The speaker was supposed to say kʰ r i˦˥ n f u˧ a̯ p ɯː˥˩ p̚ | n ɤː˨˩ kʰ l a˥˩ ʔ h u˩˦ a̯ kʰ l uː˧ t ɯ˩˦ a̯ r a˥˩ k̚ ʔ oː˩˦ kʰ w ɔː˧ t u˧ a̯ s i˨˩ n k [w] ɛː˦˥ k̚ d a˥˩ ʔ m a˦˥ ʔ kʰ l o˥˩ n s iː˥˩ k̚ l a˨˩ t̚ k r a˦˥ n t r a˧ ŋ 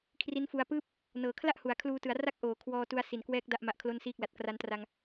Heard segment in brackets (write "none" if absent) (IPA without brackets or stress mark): w